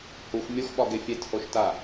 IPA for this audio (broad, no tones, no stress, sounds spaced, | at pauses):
h u x mʲ o x ɓ ɒ ɡ e fʲ e t h o ʃ t a